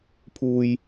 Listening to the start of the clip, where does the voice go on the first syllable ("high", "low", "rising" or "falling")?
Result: low